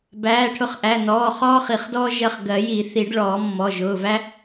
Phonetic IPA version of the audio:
b æː˩˧˩ ʈʰ ʊ˧˩ χ ʔ æ˩˧˩ n ɔː˩˧˩ χ ɔː˥ χ i˨˩˦ χ d ɔː˥ ʒ ɜ˧˩ χ ɡ ɜ˨˩˦ j i˨˩˦ θ i˨˩˦ ɖ ɭ ɔː˨˩˦ mː ɔ˩˧˩ ʒ ʊː˩˧˩ v æ˥

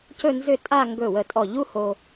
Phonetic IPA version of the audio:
c ɵ˥˧ n z ʏ˥˧ tʼ a˥˧ ŋ ɡ ɵ˧˩ w ə˧˩ tʼ ɔ˧˩ ʎ u˥ h o˧

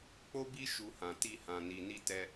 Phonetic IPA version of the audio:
k͡p o˦ b i˦ ʃ u˧ h ã˨ t i˧ h ã˨ n i˨ n i˧ t ɛ˦

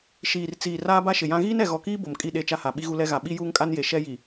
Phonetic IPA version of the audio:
ʃ iː˨ r t͡s iː˨ r aː˦ b a˦ ʃ ɪ˨ j ã˦ ɣ iː˦ n ɛ˨ ɣ ɔ˨ k iː˦ b o˨ m kʼ i˦˨ ɗ e˦˨ t͡ʃ a˦ h a˨ ɓ i˦ ɣ u˦ l ɛ˦ ɣ a˨ ɓ i˦ j uː˦ ŋ kʼ a˦ n j e˨ ʃ ɛ˦ j i˨

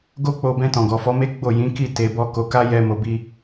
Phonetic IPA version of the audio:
ɡ o˦ k͡p o˧ b ɛ̃˧ t ɔ̃˨ ɡ ɔ˨ f ɔ˨˦ m e˦ ɡ͡b o˦˨ j ĩ˨˦ k i˦˨ t e˧ b ɔ˦ k o˧ k a˦ j ɛ˦ m o˧ b i˦

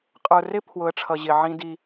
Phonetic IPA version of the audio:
qʼ ə˞˨ r ɪ˦ pʰ w ʊ˨˦ ə̯ ʈ͡ʂʰ ʌ˨ ʑ ɪ˨ ʕ ĩ˦ d i˦

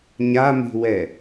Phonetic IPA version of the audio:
ɲ a m i̤ w ɛ

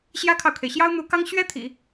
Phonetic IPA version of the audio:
ɕ j ä˥ kʰ ɑ˨ ʊ̯ kʰ e˩ ɪ̯ ɕ j ɑ˥ ʊ̯ n̪ u˧˥ k ɑ˥ ŋ ɕ ɥ ɛ˥ t̪ʰ ḭ˨˩˦

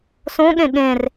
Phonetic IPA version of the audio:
s õ ɠ ẽ ɠ ẽ r

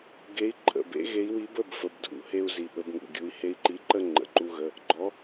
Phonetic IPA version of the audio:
ɡ e˨˥ i̯ ǃʼ ə̰˩˧˩ b ḛ˨˥ ɣ e˨˥ i̯ w i˨˥ b ə˩˧˩ b f ə˩˧˩ b dʱ ṵ˨˥ h e˧ u̯ z i˩˧˩ ɓ ə˨˥ b ŋ ṵ˩˧˩ ɡʲ u˨˥ i̯ h e˧ i̯ ǃ i˨˥ ǃ ə˥˨ ŋ͡ǃ ə̰˩˧˩ ǃ u˧ ɣ ə˩˧˩ | ɡ͡ǃ ɔ˨˥

